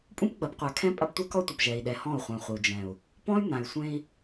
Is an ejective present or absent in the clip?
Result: present